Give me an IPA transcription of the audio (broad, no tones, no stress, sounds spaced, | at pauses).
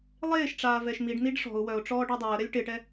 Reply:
lˠ eː ʃ ʈ͡ʂ aː v ɛ ʃ m i ɖ n̪ i ɖ ʂ ɔ̤ ʊ̯ w œ ʊ̯ ʈ͡ʂ ɔː ɖ ɔ dˤ eː ə̯ ɾ ɛ lʲ ʈ ɪ ʈ ɛ